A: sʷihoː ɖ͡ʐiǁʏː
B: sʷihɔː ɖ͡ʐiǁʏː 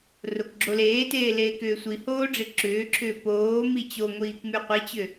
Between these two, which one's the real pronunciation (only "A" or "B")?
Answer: A